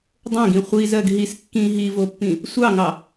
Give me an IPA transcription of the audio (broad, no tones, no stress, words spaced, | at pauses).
dˤõɡĩ χʷizɜɡ ɦis kːĩ ɦivopːĩ | sʷɑŋɑ